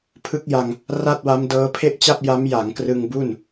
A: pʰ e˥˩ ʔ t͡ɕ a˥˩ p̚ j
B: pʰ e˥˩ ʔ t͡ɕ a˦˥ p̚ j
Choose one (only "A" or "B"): A